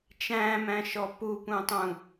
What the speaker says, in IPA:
t͡ʃæ̃mæ̃ʃɔ pupũtˤũ

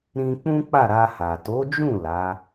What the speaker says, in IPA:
ɾĩ˧k͡pũ˦k͡pa˦˨ ɾa˧ha˨ to˨˦d͡ʒũ˦˨ la˨˦

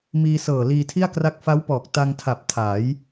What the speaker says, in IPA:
miː˧sɤː˨˩ liː˧tʰi˥˩a̯kra˦˥k̚ fa˦˥wpɔː˨˩k̚ ta˧ŋtʰa˨˩p̚ tʰa˩˦j

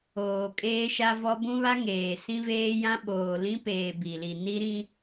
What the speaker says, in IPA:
oː˨kʼeː˦ʃa˦vɔ˦ bũ˦βa˦ ŋeː˨ sĩ˦veː˦jã˦ ɓoː˨lĩ˦peː˨ bi˨li˨ ni˦ɾĩ˦

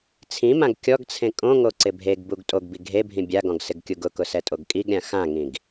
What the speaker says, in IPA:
t͡sʰĩmãɡ kʲɔɡt͡sʰẽ kʼõŋo ǀɪbʱeɡbuɡ tʼoɡbi ɡʱebʱĩ bʲaɡɔ̃ɡ sɪɡkʲuɡʊkʊ sɛtʼoɡkʼiɡɾʲã xãŋĩɡ

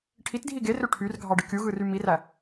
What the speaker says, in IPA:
ʈʰitdʱi ɡerø ʈʰyr ɡʱɑɖɯkʲuɣɯ rymiræ

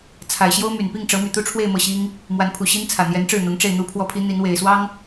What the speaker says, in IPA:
t͡sʰa˨˩ɪ̯ɕjo˥ʊ̯my˨˩n pi˥˩ŋʈ͡ʂɤ˧˥my˨˩ t̪u˥˧ʈ͡ʂʰwe˥˧ɪ̯ mɤ˥˩ɕi˥ŋ | mwa˧˥npʰu˨˩ɕi˥n t͡sʰä˨˩n̪jɛ˧˥nʈ͡ʂɻ̩˥˩n̪ʊ˧˥ŋ ʈ͡ʂe˥˩ɪ̯n̪u˥pʰwɔ˥˩pʰi˥ n̪i˧˥nwe˨˩ɪ̯ swɑ˥ŋ

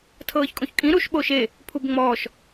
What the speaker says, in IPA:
tʰɤːçkʼõçkʼĩ ɾuʃ ɓoʃe | pʰubŋ͡mɔːʃ

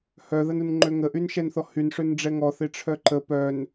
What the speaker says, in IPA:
hœðɐnunŋ͡ǃø ŋəʔynʃɛnθɔ hyn ʂønɖ͡ʐɛŋɔθɪ ʈ͡ʂʰœǃə pœn

